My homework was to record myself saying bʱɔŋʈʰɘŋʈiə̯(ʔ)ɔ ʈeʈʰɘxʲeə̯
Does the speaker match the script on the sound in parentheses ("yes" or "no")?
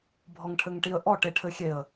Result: yes